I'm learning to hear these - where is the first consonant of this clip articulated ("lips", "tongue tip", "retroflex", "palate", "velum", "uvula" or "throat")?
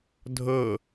tongue tip